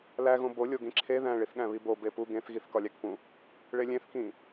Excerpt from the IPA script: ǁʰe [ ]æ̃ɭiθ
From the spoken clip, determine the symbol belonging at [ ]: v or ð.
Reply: ð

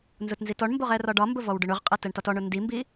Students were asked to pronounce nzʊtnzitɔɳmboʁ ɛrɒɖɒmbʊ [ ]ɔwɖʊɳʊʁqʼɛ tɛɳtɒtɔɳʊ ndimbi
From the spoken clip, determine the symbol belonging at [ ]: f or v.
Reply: v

